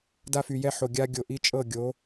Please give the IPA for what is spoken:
da˦fy˨jɛ˦ħo˨ ɡʲa˦ɡʲo˨ʔi˦ t͡ʃʼɤ˦˨ɡʲo˨˦

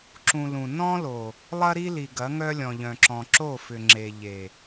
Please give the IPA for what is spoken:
ǁũ˨ lũ˨ nɔ̃˦lo˨ | lˠɐ˦ɾi˦li˨ɡɐ˨˦ ŋœ˦lʲɔ̃˨ʎœ̃˨ǁɔ̃˨ ǁo˦˨fʏ˨ŋ͡ǁe˨ ʎe˨

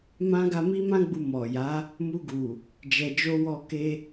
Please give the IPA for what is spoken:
mã˦ ɡa˧ mi˦mã˦ɡ͡bu˧ mɔ˨ja˨˦ | mu˧ɡu˨ | d͡ʒɛ˧d͡ʒo˦ wɔ˧ke˧

